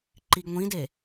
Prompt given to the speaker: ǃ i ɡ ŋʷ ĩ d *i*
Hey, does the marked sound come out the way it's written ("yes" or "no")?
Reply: no